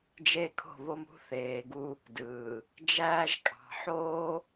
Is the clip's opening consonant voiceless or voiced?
voiced